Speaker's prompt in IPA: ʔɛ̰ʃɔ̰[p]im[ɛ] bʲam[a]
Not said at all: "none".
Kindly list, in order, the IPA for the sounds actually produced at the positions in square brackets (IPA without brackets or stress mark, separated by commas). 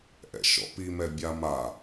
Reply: p, ɛ, a